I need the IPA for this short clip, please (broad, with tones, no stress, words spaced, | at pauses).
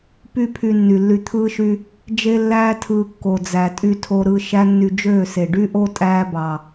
py˦pʰy˧ nːy˨lːy˧t̪ʰɯː˦ʃy˦ | d͡ʒe˦ lːæː˦tʰɯː˧ kːo˨d͡zæ˨tʼy˧tʰo˧ ɾɯ˧ ʃæ˦nːy˧d͡ʒøː˦˨se˨ ɖy˦ʔo˦ tʼæː˦bɑ˨